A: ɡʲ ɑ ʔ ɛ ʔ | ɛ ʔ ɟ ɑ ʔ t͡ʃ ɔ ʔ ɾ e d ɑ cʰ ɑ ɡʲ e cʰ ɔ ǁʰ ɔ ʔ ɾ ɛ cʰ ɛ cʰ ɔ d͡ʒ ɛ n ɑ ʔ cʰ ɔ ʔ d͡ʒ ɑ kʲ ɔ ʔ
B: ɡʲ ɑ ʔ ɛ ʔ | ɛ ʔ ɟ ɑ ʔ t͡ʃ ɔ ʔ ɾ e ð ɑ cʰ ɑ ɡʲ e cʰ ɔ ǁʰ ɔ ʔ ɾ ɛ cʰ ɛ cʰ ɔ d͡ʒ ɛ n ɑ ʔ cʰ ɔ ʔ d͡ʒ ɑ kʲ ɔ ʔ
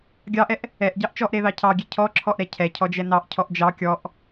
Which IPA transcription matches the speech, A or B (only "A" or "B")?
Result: B